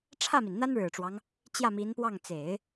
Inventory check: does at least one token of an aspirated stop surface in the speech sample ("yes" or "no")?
yes